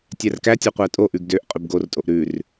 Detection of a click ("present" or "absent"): absent